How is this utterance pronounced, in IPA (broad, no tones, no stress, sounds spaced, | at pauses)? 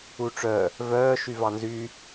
u ʈ͡ʂ œ | v œː ʃ y v ɑ n z y